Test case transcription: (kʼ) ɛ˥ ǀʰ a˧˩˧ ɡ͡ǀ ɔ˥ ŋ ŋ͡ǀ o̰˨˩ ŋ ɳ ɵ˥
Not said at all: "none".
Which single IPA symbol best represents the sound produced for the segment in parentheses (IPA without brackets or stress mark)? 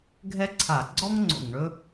ɡʱ